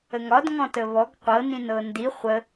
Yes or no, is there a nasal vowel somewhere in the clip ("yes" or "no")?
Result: yes